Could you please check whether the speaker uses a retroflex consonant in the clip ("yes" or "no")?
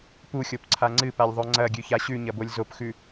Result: no